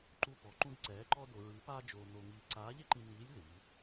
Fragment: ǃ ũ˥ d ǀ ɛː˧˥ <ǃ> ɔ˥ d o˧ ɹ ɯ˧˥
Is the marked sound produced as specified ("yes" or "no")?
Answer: yes